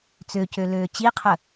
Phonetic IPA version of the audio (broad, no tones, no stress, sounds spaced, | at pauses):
t͡s ø c ø l øː t͡ɕ i qʰ ə